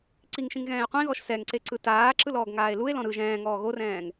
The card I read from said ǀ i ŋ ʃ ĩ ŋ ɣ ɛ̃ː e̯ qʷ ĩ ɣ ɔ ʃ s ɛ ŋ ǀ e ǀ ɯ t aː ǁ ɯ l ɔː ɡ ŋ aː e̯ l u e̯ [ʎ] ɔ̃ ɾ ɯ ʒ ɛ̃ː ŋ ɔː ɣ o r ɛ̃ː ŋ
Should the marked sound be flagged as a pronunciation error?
yes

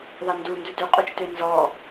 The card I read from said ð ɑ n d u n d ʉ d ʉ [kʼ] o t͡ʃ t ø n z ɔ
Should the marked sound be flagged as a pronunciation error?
yes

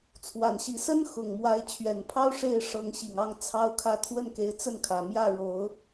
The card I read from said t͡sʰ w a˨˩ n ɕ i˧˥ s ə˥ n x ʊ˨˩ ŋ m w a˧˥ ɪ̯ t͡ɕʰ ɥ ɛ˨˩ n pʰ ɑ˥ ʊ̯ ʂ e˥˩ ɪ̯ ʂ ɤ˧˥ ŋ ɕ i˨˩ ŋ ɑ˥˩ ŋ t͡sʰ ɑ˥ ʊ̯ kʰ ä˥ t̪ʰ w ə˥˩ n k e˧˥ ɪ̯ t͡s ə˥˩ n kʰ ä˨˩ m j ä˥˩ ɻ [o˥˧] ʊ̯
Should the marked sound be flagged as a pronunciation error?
yes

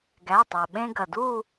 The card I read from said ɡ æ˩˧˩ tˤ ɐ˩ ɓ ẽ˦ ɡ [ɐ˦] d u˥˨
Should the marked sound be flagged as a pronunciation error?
yes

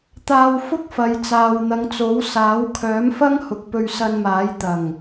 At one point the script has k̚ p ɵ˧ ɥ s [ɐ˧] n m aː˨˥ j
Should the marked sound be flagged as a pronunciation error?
no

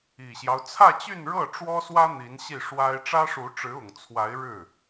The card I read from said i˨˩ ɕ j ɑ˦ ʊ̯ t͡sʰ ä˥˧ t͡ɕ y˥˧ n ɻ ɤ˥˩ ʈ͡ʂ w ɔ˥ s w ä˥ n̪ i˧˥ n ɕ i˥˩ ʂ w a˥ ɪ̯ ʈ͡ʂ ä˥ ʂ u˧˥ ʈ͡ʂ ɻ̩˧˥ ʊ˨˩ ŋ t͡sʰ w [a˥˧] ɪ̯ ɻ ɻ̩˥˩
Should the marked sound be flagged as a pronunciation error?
yes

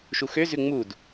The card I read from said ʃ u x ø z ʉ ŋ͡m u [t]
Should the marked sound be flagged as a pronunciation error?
yes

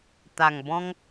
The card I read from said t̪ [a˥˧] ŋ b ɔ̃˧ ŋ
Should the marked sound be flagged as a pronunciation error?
yes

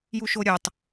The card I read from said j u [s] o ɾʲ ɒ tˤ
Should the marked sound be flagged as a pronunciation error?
yes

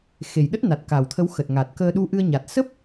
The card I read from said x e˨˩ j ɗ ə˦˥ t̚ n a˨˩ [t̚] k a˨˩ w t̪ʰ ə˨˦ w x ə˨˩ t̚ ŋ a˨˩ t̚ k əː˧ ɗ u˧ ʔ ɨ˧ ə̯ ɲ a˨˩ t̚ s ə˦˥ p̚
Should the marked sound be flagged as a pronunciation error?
no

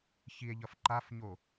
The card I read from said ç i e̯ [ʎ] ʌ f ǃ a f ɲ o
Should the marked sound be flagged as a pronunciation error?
no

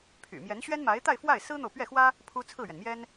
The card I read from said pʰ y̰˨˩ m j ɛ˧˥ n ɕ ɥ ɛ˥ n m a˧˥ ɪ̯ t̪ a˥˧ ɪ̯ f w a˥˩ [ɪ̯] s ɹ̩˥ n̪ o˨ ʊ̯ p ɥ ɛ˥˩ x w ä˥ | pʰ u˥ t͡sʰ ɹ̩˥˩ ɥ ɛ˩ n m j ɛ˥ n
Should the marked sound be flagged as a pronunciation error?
no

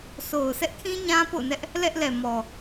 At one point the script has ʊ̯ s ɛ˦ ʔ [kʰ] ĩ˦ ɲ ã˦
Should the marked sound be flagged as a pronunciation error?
no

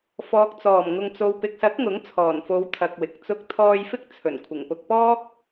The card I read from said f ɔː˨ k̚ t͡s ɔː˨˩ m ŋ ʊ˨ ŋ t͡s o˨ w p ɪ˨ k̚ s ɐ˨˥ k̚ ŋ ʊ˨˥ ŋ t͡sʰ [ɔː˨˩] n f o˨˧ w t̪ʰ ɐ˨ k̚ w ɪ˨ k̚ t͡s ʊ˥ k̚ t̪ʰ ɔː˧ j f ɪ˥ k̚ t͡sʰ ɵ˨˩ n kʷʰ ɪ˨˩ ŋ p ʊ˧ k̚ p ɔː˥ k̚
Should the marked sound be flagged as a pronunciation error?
no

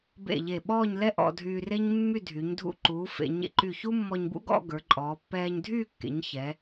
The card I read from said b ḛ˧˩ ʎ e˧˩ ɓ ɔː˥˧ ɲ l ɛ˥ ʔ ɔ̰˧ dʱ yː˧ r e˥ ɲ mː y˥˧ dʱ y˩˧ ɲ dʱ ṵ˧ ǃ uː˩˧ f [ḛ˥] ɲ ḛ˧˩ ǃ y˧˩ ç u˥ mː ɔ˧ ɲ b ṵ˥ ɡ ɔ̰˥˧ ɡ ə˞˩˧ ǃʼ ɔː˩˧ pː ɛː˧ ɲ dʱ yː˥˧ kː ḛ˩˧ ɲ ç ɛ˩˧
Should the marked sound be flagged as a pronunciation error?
yes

